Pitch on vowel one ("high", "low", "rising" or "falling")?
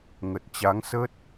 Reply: low